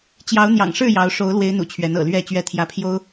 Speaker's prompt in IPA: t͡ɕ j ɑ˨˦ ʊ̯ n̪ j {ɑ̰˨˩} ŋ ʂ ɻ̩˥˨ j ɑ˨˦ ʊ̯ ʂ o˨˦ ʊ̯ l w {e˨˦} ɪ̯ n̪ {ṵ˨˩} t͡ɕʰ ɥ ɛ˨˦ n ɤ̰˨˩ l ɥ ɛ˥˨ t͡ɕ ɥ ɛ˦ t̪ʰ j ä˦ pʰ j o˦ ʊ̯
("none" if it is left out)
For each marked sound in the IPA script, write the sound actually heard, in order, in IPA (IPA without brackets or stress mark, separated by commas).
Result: ɑ̰˨˩, e˨˦, ṵ˨˩